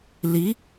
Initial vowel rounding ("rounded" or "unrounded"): unrounded